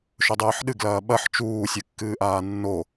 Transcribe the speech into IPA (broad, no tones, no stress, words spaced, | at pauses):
ʃɵdˤɨːħɗɨɡlɐː ɓɐħ t͡ʃuːsʲɨkːɨːʔaː nːo